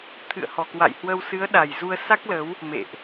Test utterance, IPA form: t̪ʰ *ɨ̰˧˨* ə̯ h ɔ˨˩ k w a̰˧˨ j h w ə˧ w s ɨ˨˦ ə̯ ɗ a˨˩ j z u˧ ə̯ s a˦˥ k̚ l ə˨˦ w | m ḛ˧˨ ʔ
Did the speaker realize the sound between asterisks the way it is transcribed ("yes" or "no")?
yes